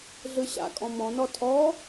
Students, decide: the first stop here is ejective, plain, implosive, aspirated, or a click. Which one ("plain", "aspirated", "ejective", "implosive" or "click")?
ejective